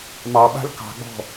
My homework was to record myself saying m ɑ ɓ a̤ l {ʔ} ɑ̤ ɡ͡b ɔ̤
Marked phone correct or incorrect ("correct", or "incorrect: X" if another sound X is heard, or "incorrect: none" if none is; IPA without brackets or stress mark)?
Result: incorrect: k